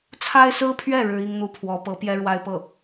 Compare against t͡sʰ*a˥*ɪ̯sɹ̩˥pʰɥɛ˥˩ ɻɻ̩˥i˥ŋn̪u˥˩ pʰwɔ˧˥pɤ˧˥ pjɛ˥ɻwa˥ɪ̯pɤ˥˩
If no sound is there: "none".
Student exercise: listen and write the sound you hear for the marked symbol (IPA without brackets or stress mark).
a˥